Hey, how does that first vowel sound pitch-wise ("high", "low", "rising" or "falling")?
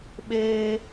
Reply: high